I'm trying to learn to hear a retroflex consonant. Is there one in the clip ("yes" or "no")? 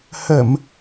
no